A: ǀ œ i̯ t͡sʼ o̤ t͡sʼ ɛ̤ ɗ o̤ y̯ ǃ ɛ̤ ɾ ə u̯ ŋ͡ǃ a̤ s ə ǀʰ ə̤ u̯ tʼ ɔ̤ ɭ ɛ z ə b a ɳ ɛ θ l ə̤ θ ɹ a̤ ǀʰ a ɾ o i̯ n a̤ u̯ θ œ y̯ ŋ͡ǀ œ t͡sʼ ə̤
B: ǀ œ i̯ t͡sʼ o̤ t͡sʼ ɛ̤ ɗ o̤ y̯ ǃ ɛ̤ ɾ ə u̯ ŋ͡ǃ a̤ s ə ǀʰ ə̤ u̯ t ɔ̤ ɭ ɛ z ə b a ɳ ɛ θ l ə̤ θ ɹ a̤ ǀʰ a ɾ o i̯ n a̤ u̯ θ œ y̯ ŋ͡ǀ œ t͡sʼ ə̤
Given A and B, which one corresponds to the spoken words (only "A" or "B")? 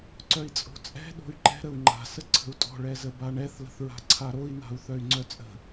A